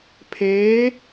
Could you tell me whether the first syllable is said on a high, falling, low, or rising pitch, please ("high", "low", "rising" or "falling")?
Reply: rising